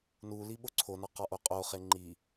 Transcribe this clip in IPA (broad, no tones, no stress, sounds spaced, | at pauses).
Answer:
n u l i ɓ o ǀʰ o n ɒ q ɒ ʔ o qʼ o χ e ŋ͡ǃ i